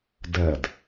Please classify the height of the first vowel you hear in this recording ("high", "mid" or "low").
mid